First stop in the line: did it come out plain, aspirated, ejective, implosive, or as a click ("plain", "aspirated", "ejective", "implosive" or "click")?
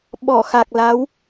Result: implosive